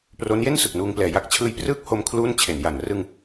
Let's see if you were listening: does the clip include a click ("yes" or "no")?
no